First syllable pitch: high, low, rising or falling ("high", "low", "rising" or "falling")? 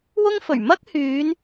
high